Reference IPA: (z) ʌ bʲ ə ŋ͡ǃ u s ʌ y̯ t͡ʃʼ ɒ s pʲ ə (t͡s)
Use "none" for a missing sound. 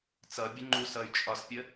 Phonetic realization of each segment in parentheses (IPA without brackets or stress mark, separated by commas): t͡s, none